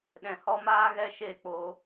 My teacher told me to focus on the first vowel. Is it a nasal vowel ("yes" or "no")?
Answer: yes